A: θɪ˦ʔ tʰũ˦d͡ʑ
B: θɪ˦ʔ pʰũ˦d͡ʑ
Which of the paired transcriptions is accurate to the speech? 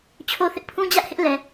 B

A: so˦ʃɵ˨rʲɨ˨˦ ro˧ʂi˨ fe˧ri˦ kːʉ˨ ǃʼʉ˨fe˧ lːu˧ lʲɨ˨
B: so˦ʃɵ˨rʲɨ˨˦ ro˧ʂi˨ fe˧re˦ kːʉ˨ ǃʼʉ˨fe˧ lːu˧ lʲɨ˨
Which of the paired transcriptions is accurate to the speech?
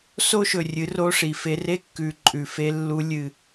B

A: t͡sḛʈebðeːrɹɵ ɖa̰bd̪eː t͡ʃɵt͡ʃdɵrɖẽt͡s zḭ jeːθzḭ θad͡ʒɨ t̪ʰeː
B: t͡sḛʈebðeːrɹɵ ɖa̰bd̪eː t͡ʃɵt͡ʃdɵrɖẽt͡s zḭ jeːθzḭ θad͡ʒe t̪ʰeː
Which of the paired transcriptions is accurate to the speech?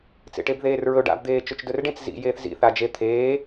B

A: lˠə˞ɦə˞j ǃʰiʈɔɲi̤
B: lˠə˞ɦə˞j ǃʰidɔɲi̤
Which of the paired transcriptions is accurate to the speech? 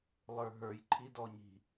B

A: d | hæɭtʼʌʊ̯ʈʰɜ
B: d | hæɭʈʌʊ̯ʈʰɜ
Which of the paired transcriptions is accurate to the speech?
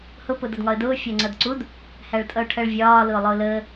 A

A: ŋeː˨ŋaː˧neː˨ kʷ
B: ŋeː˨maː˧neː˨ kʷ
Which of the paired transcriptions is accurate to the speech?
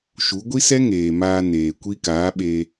B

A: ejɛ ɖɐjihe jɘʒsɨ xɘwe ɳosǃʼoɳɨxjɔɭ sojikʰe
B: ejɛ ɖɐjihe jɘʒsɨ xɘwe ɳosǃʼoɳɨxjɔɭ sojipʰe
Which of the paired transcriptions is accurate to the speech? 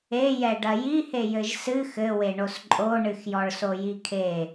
A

